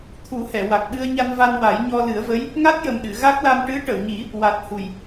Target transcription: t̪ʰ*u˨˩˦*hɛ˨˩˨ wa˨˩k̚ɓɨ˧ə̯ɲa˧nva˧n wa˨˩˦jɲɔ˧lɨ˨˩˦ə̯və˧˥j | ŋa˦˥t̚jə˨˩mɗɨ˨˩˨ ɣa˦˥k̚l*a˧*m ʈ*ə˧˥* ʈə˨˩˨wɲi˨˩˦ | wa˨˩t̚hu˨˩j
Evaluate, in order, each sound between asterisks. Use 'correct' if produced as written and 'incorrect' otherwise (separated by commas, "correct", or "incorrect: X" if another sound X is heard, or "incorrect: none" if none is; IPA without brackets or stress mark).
correct, correct, incorrect: ɨ˧˥